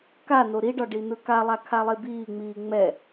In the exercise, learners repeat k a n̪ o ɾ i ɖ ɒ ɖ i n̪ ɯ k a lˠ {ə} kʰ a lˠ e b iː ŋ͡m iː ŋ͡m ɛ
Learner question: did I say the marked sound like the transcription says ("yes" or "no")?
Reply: no